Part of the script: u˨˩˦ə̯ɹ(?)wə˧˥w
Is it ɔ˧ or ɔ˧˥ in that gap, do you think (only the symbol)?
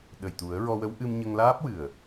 ɔ˧